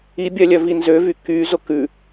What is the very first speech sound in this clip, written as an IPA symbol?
i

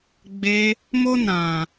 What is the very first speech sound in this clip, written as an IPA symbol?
ɡ͡b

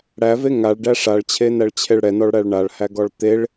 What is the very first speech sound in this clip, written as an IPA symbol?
ɽ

